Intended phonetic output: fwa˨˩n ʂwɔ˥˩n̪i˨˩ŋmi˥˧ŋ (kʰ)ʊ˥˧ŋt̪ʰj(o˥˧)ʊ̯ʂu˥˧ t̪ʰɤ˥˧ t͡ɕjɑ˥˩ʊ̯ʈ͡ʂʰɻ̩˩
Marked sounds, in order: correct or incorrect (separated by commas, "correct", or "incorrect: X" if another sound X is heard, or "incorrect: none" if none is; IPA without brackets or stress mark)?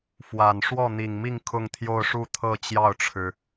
correct, correct